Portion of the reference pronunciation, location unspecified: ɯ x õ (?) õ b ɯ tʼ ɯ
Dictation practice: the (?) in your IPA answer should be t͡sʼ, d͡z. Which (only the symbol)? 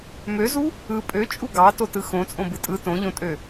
t͡sʼ